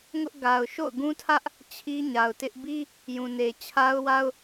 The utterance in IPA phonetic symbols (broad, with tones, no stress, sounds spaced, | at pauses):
ŋ ʊ˦ ʔ ɡ a˨ ʊ̯ ʃ o̰˦˨ ʊ̯ ɡ ũ˦ tʰ ä˦ ʔ | t͡ɕʰ i˦ ɲ a˨ ʊ̯ t ɪ˦ ʔ b i˦ | j ũ˨ n e˨ t͡ɕʰ a˦ ʊ̯ w a˦ ʊ̯